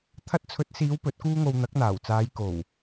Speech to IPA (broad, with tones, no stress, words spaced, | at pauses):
t̪ʰɐ˧t̚t͡sʰɵ˨˥t̚siː˨˧w pɵ˨˥t̚kuː˥ŋo˧w n̪ɐ˨˥k̚n̪aː˨˩wt͡saː˨˧j ko˨˩w